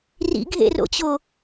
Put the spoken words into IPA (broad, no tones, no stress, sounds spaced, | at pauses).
r ḭ ɡʱ ḛ r o̰ t͡ɕ o